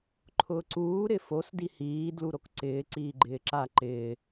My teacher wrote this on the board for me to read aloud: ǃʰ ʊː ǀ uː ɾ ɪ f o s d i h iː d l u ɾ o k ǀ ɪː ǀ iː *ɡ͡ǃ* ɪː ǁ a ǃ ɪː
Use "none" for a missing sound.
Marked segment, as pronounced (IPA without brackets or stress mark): ɡ͡ǃ